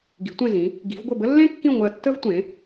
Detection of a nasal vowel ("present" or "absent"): present